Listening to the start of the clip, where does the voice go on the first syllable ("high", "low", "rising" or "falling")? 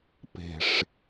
low